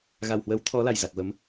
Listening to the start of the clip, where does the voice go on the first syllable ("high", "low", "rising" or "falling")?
low